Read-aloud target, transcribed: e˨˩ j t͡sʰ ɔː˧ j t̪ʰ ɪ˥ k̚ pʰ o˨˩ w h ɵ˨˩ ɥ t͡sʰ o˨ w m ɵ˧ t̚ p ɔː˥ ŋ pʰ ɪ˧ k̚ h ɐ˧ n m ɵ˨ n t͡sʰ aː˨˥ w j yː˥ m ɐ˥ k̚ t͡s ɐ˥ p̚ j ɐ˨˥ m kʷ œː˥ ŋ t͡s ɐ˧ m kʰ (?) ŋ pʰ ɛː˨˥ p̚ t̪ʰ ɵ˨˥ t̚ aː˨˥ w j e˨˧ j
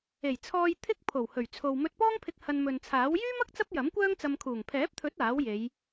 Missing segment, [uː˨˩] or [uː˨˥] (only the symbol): uː˨˩